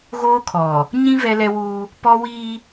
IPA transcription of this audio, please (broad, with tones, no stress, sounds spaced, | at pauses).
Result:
ɣ oː˦ kʰ ɔ˨ | ɲ ĩ˦ v ɛ˦ l ɛ˦ w uː˦ | p ɔ˦ w iː˦